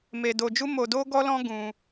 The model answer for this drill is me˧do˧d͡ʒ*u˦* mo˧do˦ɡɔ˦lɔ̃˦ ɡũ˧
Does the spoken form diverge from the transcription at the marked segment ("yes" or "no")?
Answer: no